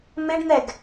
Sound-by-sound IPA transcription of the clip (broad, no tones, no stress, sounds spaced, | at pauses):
m ɪ ɖ n̪ ɛ ɡ